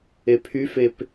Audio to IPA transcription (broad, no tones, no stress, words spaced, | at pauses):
epʰyfep